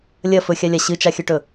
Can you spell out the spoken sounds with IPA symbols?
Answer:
lʲɐ fɵxʲalʲa ɕɨt͡ʃaxʲɵʈɵ

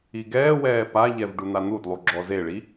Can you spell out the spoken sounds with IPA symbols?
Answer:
iɡɛːwɛː paʎɛv ɖun̪an̪udlˠu ɡ͡ǁɔzeɭi

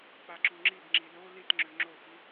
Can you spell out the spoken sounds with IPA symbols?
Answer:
k͡paǁuŋ͡ǁibŋ͡ǁi lo litŋ͡ǁø ŋ͡ǁoxi

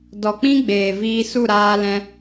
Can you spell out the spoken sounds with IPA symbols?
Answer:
dɔ˨k͡pĩ˦ ɡ͡beː˨viː˧su˦˨ ɾaː˧lɛ̃˧

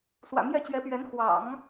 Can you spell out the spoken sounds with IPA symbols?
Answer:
swä̰˨˩mjɛ˥˩t͡ɕɥɛ˧˥pɥɛ˧˥n xwɑ̰˨˩˦ŋ

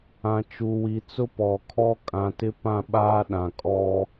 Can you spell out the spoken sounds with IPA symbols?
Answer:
ã˨t͡ʃu˨wi˨ t͡sʊ˦pɔ˨kʰɔ˦ kʼã˨tɪ˦pã˦˨ ɓaː˦ɗã˨kʼɔ˦

